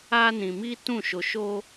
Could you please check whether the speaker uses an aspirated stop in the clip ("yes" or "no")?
no